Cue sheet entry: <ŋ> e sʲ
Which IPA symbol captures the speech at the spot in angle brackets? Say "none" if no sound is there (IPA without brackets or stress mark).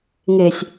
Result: ŋ